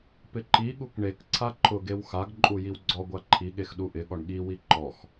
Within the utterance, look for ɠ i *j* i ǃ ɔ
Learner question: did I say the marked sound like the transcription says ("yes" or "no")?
no